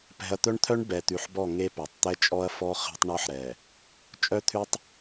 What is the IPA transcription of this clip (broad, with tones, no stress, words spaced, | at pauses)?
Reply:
pɛ̤˨ɐ̯t̪œ˦ɳt̪ʰœ˦ɳ bɛ˨t̪ʉ˨ħbɔ˦˨ ŋe˦pœ˨tˤ t̪ɛ˦t͡ʃʼɔ˦ɐ̯fɔ˦ χɛ̤˦tˤɳɔ˦ħɾɛ˨ | t͡ʃʼœ˦t̪ʰʉ˦tˤ